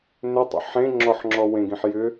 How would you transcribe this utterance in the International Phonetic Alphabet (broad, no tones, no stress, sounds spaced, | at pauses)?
n ʏ tˤ ə̰ ħ ẽ ŋ͡ǁ ɔ ħ ŋ͡ǁ ɔ w ẽ ɡ ĩ ħ j ʏ